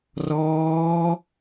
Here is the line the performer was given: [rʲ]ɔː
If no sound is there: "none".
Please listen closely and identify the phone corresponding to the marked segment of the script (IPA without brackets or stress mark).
r